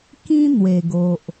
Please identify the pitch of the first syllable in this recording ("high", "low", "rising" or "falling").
high